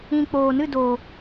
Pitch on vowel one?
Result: low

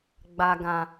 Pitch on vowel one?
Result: low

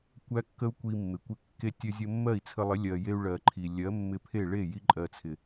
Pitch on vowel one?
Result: high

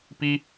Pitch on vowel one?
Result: high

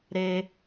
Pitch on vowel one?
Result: high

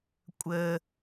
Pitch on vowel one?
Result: low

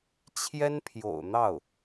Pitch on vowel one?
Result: high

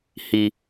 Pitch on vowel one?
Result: low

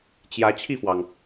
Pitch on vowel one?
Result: rising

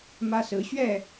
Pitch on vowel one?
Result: high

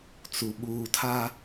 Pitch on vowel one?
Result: low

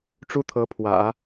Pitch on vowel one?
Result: high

